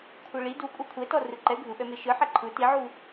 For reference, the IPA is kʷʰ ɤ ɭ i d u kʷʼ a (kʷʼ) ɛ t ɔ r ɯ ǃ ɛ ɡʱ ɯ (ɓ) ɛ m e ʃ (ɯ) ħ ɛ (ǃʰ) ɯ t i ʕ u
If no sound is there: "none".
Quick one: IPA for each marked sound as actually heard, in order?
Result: kʷʰ, ɓ, ɯ, ǃʰ

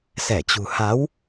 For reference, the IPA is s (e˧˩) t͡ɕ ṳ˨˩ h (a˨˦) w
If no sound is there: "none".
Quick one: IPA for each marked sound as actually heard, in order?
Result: ɛ˧˩, a˨˦

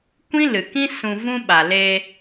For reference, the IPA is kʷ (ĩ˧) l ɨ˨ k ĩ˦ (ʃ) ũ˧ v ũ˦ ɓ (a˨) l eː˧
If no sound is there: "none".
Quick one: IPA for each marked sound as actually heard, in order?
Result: ĩ˦, s, a˨

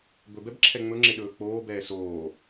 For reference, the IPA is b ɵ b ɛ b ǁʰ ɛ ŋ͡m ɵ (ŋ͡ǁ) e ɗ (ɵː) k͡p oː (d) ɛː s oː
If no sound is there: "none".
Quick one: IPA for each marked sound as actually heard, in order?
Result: ŋ͡ǁ, ɵː, b

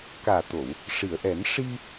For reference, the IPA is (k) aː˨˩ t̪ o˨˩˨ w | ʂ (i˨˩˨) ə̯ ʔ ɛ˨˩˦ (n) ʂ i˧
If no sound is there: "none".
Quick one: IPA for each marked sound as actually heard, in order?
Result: k, i˨˩˨, n

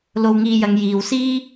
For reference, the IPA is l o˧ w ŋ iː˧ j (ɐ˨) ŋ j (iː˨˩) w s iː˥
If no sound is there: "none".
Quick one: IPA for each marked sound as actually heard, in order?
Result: ɐ˨˧, iː˨

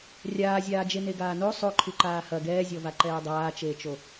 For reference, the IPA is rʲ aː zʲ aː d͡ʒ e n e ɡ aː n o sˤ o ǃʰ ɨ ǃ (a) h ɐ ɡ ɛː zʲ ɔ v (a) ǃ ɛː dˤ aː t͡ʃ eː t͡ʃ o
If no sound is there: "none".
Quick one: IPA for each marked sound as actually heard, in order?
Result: aː, a

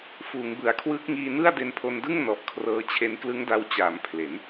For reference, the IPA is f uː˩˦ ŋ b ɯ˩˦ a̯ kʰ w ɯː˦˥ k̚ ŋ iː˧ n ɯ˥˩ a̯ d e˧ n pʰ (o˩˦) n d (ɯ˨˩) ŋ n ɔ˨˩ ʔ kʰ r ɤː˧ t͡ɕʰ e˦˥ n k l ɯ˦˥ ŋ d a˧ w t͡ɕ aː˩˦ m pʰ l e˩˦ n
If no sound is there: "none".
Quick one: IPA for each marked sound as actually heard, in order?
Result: o˧, ɯ˥˩

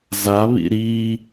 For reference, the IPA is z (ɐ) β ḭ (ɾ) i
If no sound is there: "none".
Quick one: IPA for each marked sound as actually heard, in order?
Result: a, ɾ

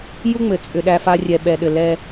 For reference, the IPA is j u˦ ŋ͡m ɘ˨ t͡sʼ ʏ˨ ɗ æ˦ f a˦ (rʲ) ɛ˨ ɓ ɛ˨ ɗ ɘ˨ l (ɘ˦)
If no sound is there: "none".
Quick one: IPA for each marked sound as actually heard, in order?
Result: rʲ, ɛ˦

